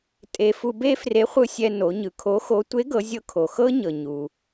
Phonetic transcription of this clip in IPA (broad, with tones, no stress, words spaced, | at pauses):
tʼe˧ fu˧be˥fre˧˥ χʷɯ˧sʲɛ˧ no˩˧ɲɯ˩˧kʰo˧˥xo˧˥ tʷe˧˥ɡɤ˩˧zʲɤ˧ kʰo˩xɤ˥ ɲɤ˩ɲu˩